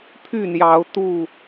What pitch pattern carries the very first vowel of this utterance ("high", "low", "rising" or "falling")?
falling